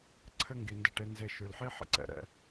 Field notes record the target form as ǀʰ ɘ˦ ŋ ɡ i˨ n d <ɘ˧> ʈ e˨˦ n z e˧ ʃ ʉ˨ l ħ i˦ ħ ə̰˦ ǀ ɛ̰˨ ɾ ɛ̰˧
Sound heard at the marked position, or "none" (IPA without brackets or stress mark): ɘ˧